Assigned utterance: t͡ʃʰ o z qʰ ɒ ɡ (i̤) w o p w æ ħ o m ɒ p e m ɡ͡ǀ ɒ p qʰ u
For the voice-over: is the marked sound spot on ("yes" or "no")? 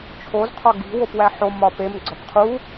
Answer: yes